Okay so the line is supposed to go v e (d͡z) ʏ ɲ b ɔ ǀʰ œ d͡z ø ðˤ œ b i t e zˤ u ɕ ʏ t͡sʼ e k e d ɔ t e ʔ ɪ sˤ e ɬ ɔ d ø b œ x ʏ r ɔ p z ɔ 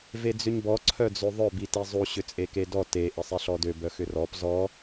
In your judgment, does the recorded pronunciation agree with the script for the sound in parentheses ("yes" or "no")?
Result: yes